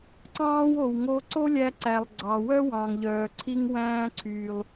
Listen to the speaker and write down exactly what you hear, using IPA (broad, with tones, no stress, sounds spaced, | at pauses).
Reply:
ǀ ɑ̃ː˥ w o˩ w ŋ o˧ ǀ o˥ lʲ æ˧ ǀ æ˩ lˠ ɡ͡ǀ ɑ˩ w œ˥ w ɑ̃˩ ŋ ʎ œː˩ ǀʰ i˧ ŋ w æ̃ː˧ ǀʰ y˩ lˠ